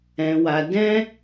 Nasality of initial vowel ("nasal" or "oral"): nasal